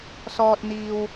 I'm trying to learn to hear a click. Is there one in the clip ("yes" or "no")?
no